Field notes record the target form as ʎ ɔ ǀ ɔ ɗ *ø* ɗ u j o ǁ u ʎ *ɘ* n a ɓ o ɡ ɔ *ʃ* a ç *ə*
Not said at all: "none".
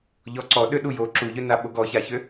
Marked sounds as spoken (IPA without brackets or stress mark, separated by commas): ø, ø, ç, ø